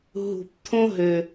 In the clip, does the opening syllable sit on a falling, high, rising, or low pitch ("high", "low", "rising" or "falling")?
low